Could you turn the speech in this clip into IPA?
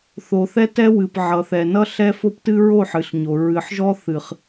θo˨θɛ˦tɛ˦wɨ˨p ʕʌ˨θɛ˨ nʌ˦ɬɛ˦ fo˦ptɨ˦ɹo˦˨ ħɨ˨ɬɲo˨ ɹɨ˨ħʒɔ˦ θɨ˨χ

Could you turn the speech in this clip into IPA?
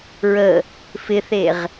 ɹə | fɪθeʁ

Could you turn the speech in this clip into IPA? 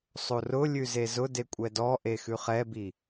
sˤorʊlʲʉ zezʊde kʷʼɛdɔʔe xʉχɛbi

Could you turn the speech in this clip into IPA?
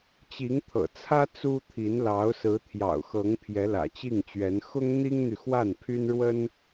t͡ɕi˧˥ŋt̪ʰɤ̰˨˩t͡sʰä˥ t͡su˥t̪ʰi˧˥n lɑ˧˥ʊ̯sɹ̩˧˥t̪ʰjɑ̰˨˩ʊ̯xɤ˧˥ŋ pʰjɛ˧˥lä̰˨˩t͡ɕi˥˩ŋt͡ɕɥɛ˧˥n xʊ˥ŋn̪i˥ŋn̪y˨ xwa˥˩npʰy˥nɻwə˥n

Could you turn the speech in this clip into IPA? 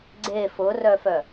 ɡ͡ǀe fʊrœfœ

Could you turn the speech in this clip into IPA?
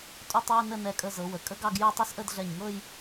tʼu˥˧tˤwə˥˧ nə˥˧nɛ˧kʼə˧ zɤ˩˧wə˩˧ kʼə˥ɡɑ˥˧ɡju˥˧ tˤə˥˧sʔə˥˧dɮɛ˧˩ɲŋɤ˥˧j

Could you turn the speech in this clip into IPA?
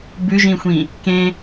bʉʒĩxʷĩ | kẽ

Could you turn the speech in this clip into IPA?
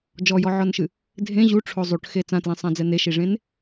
d͡ʒɔjɔʕɔnʃɨ | dʱẽ ʑuʈ͡ʂʰo zˤuʈxe t͡sãtlẽsˤãd͡zɛ neʃiʐẽn

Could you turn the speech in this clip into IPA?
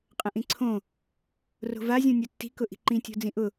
qʼə̃ʔĩǀʰõ | ro̤vazʲõ nʲotːi̤kʊ ʔi̤ǃĩtʲo̤ d͡zĩʔʊ

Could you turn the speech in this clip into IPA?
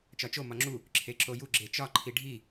t͡ʃɒt͡ʃo mɒŋ͡ǁu | ǁʰeǁoju ɡ͡ǁet͡ʃɒ ǃʰiɖʱi

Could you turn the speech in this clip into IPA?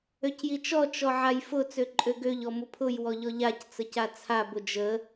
øcjit͡ʃɔ t͡ʃɔʕajfʊ t͡søǃʼøɡøʎ ɔmʊpʰʊj wɔʎɔʎac t͡səcat͡sʰa bʊd͡ʒə

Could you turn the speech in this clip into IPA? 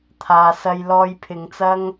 t̪ʰaː˨sɐ˧j lɔː˧jpʰɪ˨˧ŋt͡sɐ˥ŋ

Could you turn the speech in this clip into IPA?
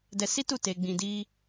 dɛ˧si˦tu˦˨ te˧ɡ͡bĩ˧di˦

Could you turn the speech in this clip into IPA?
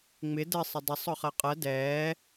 ŋ͡mɪ dɜsˤɪ dˤɪsˤ ɔχɜqʼɜ dɛː

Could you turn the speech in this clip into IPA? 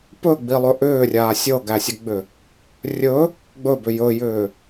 pɵɡ͡bilˠɵ ʔʏːrʲaː sʲɤɡæsʲɵɡ͡bʏ | rʲɵ | ɡ͡bɵbʏ jɵjʏː

